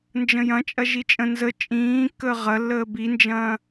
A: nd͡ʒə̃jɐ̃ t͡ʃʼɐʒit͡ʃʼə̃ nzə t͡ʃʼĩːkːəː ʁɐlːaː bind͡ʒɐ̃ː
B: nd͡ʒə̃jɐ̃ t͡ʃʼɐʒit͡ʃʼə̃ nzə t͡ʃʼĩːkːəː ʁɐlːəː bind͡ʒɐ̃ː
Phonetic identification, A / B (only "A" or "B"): B